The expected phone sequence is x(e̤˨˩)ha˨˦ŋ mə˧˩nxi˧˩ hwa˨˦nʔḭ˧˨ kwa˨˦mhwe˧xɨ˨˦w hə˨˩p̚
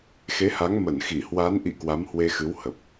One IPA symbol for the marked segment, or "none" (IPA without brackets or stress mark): e˨˦